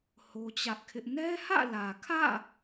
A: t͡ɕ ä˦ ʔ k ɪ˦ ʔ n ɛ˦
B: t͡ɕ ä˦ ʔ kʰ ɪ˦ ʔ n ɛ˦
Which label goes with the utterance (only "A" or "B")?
B